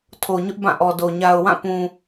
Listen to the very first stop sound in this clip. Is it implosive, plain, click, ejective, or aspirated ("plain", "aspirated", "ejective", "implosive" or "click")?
aspirated